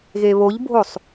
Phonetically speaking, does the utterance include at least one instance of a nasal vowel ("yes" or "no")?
no